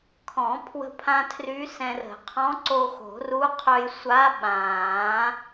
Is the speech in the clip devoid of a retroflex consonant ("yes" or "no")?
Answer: yes